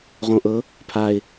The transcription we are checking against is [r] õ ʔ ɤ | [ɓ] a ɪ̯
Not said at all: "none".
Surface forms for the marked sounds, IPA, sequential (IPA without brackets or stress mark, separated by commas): ʁ, pʰ